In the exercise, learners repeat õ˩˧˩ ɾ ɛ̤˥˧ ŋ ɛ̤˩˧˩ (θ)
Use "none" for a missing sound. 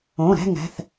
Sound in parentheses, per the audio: θ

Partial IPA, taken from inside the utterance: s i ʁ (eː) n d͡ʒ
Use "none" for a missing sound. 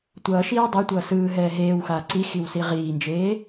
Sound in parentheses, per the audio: iː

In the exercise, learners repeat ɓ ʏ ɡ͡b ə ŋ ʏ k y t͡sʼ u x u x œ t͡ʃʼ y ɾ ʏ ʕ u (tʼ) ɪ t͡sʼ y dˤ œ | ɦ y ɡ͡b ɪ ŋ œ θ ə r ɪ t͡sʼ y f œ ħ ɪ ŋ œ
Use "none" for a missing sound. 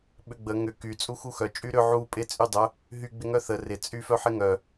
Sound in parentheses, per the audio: pʼ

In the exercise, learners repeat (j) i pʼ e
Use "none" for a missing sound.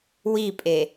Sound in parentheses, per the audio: w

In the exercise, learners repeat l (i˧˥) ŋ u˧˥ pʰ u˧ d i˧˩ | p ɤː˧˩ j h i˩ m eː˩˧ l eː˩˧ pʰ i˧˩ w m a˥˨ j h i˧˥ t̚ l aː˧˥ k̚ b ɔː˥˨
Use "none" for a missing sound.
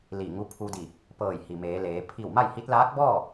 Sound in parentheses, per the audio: i˧˩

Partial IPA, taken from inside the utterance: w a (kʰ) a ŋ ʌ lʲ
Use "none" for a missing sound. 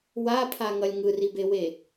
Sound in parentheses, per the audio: pʰ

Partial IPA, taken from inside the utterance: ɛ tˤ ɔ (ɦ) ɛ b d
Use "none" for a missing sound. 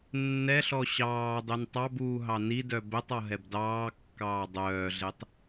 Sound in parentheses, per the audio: ɦ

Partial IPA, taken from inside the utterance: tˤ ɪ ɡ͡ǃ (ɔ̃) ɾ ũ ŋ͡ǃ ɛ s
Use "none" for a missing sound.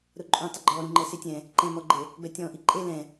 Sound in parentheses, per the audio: ɔ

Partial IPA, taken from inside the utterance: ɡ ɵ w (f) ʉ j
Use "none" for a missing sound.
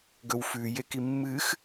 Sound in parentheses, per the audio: f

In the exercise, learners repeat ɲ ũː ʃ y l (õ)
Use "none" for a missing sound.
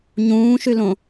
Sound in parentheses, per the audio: õ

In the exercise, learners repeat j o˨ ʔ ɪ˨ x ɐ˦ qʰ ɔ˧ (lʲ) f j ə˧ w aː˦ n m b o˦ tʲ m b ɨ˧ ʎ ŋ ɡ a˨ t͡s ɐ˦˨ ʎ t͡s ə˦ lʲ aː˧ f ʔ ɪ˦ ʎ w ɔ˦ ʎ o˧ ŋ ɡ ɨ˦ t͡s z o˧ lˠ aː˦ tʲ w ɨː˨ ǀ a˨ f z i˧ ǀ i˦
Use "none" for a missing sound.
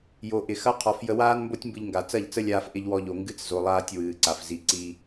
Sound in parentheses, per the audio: none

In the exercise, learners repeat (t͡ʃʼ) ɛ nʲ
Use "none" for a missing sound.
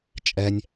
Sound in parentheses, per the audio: t͡ʃʼ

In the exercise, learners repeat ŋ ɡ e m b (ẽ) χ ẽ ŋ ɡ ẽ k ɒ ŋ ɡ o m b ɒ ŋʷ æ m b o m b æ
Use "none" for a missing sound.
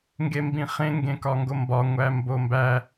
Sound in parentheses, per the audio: ĩ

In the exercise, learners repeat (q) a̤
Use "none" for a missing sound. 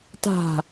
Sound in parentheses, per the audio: t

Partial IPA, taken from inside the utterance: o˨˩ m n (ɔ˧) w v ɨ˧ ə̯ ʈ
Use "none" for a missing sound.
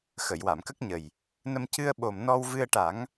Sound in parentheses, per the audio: ɔ˧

